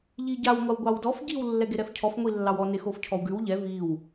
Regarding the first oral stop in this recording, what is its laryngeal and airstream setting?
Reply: plain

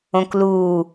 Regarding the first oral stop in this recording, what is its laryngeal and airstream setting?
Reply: plain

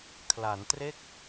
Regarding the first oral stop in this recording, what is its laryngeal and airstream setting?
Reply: aspirated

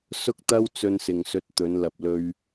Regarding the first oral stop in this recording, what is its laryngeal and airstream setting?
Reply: plain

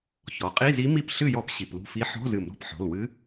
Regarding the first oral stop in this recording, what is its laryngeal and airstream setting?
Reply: ejective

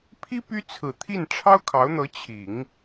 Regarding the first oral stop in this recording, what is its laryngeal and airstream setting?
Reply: aspirated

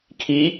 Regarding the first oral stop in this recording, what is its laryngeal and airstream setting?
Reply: aspirated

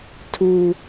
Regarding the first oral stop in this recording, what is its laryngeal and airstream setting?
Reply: aspirated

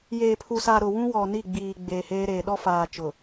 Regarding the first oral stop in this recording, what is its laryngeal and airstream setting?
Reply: aspirated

